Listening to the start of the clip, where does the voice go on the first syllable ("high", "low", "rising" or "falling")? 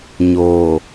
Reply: low